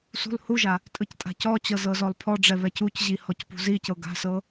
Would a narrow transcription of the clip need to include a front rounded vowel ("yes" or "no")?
no